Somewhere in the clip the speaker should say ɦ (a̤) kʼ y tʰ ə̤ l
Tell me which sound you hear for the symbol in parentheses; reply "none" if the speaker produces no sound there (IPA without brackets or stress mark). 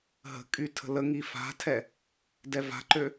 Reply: ə̤